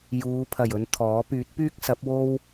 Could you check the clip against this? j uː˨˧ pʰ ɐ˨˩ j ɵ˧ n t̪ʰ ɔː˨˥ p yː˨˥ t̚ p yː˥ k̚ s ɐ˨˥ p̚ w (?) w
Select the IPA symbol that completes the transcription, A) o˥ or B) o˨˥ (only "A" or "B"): A